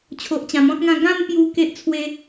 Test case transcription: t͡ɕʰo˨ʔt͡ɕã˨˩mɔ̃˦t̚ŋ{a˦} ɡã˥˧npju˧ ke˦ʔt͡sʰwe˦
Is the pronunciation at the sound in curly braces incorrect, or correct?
incorrect